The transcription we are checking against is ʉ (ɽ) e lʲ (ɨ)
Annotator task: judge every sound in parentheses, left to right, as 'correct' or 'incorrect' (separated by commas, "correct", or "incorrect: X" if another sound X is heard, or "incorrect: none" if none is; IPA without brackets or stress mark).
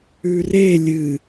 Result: incorrect: r, correct